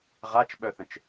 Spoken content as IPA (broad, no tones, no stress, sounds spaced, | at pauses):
ʁ a t͡ʃ ɓ œ θ ə̃ t͡ʃ